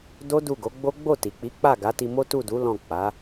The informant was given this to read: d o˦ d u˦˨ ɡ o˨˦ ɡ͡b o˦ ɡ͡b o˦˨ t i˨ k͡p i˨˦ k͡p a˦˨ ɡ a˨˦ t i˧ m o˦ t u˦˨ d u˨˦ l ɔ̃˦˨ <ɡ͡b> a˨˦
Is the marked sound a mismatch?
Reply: yes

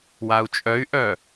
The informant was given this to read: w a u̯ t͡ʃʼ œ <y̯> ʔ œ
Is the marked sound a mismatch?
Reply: no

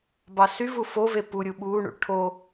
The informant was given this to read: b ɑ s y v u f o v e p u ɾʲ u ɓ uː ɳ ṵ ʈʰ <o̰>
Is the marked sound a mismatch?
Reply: yes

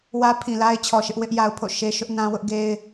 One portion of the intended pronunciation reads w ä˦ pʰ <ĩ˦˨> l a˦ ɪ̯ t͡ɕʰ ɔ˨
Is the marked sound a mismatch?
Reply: yes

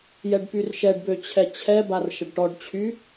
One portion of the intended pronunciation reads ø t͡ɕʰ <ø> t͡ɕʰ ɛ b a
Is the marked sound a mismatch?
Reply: yes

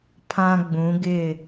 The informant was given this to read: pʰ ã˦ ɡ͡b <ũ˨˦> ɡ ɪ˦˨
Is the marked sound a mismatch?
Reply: no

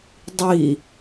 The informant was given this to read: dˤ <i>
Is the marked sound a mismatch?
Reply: no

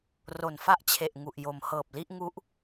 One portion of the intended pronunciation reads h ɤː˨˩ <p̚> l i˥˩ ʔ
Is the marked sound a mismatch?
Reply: no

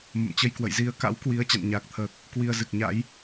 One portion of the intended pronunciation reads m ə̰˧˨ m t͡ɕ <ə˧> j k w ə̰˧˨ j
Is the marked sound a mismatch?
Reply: no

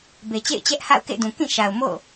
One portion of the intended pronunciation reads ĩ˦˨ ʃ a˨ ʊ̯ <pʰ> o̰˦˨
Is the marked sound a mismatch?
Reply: yes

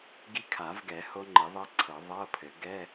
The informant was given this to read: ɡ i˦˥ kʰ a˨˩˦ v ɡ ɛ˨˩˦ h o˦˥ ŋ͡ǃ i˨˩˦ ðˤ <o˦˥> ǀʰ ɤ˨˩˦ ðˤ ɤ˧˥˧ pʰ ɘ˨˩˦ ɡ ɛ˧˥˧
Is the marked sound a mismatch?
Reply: yes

